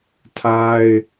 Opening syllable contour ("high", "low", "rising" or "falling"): high